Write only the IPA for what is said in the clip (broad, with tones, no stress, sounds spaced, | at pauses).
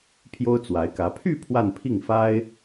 pʰ j o˥ ʊ̯ t͡s w a˧˥ ɪ̯ k ä˧˥ pʰ y˥˧ pʰ w a˥˧ n pʰ i˥˩ ŋ f a˥ ɪ̯